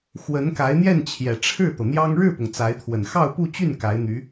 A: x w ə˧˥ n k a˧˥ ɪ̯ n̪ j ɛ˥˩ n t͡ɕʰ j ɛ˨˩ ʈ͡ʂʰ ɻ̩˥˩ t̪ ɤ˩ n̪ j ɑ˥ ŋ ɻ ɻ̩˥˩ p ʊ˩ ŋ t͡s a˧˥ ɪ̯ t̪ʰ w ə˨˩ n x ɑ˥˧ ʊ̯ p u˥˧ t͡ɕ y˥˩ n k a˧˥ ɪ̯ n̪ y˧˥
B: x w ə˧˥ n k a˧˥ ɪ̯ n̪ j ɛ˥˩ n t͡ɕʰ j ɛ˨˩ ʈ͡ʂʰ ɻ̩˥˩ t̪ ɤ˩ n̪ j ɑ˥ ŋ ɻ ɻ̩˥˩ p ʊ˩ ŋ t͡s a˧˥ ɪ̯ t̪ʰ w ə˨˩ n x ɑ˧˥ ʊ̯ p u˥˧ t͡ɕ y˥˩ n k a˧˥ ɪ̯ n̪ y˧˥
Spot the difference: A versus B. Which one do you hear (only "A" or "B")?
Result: A